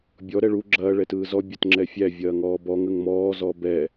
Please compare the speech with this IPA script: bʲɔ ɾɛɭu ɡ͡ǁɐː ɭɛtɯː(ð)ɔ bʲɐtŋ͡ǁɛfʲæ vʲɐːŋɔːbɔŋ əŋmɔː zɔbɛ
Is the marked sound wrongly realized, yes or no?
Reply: yes